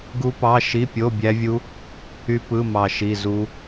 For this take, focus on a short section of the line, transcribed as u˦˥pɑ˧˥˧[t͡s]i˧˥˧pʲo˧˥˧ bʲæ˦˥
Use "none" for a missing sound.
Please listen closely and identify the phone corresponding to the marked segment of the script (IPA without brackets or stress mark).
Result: ʃ